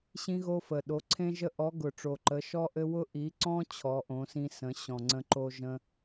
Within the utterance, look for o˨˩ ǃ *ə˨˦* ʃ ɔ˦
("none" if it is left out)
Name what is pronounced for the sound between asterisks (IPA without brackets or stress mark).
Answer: ə˨˦